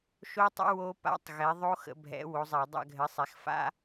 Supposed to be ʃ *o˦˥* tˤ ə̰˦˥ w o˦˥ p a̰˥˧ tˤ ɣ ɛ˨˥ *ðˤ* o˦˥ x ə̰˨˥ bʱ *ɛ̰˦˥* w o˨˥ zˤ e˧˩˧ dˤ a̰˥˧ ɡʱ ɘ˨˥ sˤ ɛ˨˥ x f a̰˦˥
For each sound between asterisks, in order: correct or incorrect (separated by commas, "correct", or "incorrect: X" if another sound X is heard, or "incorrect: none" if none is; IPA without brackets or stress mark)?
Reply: correct, correct, incorrect: ɛ̰˨˥